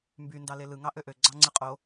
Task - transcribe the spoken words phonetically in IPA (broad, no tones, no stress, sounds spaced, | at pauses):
m b y n d ɑ l e l ɯ ŋ ɑ ʔ ø ʔ ø ɡ͡ǀ ɑ ŋ͡ǀ ɯ qʼ o